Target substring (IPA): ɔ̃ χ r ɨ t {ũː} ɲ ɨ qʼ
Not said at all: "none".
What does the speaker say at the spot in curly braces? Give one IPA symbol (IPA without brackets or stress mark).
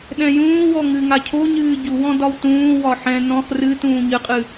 ũː